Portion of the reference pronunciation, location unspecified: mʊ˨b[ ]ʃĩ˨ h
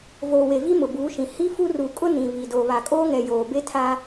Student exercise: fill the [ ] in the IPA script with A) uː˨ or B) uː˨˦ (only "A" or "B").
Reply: B